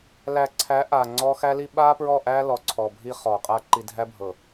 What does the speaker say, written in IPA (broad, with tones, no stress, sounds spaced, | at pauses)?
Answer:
l æ˨ ǀʰ æ˨˦ ʔ a˨ ŋ͡ǀ ɔ˦ x æ˦ l i˦ ɓ a˦ p ɹ ɔ˦˨ ʔ æ˦ l ɔ˨ ǀʰ ɔ˨ bʱ i˦ χ ɔ˨ qʼ a˦ ǃ i˨ dʱ æ˦ bʱ ɤ˨